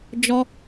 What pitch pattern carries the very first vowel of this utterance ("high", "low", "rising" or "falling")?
high